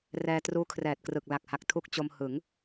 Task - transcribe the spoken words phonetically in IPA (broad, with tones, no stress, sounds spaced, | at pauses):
r ɛː˧ t r uː˦˥ kʰ r ɛː˨˩ t̚ k r ɯ˨˩ k̚ l a˨˩ k̚ h a˨˩ k̚ tʰ u˦˥ k̚ t͡ɕ o˧ m h ɯ˩˦ ŋ